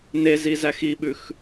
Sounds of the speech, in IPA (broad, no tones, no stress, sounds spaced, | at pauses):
n e z i z æ x i ɓ ʉ x